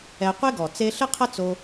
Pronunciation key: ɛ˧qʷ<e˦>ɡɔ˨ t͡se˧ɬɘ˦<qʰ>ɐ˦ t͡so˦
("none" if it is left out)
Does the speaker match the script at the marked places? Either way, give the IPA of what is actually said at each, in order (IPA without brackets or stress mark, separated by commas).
e˦, qʰ